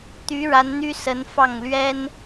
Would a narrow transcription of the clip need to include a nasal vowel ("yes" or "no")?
no